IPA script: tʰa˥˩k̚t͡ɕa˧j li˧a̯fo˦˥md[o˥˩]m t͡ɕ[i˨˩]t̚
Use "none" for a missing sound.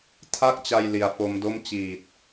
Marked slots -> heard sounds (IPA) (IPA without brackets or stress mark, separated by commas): o˥˩, iː˨˩